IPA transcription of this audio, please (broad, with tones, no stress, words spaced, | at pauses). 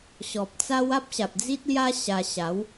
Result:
ɕɔ˨p̚t͡sa˦w a˦p̚ɕa˨p̚d͡zi˦t̚lja˦ ɕa˧ ɕa˨˦w